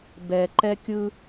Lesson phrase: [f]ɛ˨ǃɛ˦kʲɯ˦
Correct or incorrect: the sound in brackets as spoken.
incorrect: b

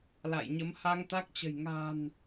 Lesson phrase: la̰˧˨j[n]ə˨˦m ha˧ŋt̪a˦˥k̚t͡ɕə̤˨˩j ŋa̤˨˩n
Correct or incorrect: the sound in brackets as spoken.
incorrect: ɲ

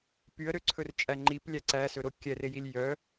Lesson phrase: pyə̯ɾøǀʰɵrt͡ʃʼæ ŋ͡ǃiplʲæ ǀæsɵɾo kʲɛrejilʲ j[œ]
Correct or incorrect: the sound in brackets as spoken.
correct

